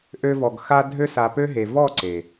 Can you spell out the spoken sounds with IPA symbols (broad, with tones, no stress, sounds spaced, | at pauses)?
ʔ ø˧ v ɔ˨ ɡ x a˧ dʱ ø˧ s a˨ p ø˧ ɦ e˨ v ɔ˦˨ ǀ e˨